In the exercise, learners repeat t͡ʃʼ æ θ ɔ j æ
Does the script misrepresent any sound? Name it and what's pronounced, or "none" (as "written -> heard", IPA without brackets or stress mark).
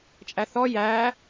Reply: none